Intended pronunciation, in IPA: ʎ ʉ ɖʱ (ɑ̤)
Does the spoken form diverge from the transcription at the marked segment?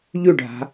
yes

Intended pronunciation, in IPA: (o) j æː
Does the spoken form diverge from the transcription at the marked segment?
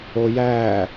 no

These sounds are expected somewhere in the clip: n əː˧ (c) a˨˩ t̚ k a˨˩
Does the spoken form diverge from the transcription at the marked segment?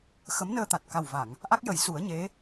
yes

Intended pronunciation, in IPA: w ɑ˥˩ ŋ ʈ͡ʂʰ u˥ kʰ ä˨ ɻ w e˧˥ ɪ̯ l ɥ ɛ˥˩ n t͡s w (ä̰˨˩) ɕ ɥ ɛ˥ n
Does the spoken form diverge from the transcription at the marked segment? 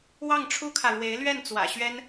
no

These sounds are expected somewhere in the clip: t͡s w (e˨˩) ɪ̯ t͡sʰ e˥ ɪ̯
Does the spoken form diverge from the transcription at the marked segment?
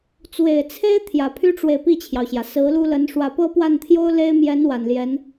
no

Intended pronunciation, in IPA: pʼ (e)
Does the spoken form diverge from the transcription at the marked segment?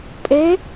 no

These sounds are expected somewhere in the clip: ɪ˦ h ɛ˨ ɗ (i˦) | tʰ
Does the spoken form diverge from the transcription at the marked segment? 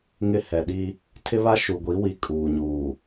no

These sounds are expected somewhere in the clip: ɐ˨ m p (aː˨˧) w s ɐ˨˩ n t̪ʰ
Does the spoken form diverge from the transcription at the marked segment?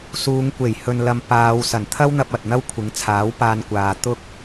no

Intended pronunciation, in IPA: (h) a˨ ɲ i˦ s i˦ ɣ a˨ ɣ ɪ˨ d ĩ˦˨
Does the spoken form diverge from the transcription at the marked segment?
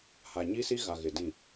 no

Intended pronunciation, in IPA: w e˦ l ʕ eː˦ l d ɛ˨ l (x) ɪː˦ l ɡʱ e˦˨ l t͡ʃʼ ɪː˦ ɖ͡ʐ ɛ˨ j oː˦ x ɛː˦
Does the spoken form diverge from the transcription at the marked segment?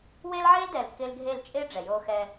yes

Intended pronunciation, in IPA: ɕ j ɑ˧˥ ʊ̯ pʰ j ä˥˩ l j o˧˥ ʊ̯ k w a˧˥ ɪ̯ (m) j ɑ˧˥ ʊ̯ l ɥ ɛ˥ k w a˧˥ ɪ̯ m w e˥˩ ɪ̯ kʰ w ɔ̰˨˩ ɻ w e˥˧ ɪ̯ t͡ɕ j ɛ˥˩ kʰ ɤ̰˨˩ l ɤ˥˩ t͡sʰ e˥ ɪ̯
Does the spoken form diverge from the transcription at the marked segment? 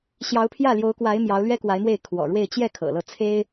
no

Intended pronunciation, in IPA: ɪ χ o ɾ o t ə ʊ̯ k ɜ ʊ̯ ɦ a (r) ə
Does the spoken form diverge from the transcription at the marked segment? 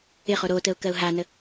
yes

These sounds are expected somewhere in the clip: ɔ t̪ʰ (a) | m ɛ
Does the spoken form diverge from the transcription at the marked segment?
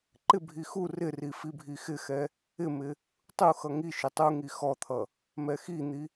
yes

